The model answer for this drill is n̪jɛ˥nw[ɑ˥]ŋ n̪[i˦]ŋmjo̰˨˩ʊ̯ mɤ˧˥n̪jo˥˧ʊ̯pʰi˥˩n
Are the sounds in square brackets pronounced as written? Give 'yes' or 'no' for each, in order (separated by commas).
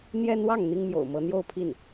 no, no